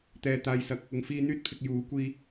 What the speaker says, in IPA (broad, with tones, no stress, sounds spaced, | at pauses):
t̪ ɛː˨ t̪ aː˨ j s ɐ˨˥ k̚ | ʊ˨ ŋ f iː˧ n̪ yː˥ t̚ pʰ ɪ˨ k̚ j uː˨˥ kʷ iː˧